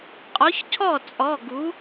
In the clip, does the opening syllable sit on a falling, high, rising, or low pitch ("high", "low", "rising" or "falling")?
rising